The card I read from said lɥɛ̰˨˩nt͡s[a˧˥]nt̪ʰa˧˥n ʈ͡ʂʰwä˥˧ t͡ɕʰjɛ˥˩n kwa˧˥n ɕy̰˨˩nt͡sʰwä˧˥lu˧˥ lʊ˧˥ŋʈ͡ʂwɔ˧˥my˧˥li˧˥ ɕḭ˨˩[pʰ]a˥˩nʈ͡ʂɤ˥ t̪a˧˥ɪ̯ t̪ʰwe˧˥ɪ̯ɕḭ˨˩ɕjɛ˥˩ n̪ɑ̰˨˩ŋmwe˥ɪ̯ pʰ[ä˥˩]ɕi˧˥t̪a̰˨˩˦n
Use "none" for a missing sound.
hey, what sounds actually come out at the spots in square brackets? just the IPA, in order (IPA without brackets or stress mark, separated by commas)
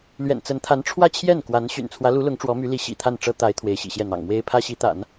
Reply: ə˧˥, t̪ʰ, ä˥